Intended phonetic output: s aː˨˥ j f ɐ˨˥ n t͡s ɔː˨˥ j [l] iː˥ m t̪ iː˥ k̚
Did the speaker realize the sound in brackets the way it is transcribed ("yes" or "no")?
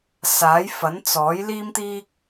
yes